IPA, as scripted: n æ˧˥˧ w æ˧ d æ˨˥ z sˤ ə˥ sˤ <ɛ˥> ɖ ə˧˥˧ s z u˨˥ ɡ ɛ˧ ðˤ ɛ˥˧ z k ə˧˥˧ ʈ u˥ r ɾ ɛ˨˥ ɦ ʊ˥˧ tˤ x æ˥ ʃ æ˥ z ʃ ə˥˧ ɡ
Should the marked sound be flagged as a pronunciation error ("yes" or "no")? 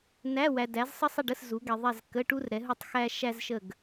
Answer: yes